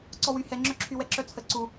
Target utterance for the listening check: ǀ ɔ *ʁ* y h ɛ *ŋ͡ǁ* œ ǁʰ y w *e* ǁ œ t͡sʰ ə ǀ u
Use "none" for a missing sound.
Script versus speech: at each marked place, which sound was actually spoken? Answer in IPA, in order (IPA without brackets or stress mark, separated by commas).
w, ŋ͡ǁ, ɛ